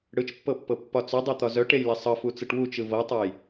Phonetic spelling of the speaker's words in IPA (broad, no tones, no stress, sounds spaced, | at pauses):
ɽ ɯ t͡ʃ pː ɤ pː ɤ pː ɒ t͡s œ dˤ e t̪ ɒ z œ ʈ e j l ɛ sˤ ɤ f u t͡s ɯ ʈ w u t͡ʃ ɯ v ɤ tˤ ɤ j